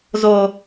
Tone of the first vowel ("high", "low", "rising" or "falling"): low